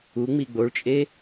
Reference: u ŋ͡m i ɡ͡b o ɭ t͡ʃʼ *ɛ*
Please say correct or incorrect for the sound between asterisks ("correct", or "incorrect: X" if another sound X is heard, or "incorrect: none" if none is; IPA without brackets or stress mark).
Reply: incorrect: e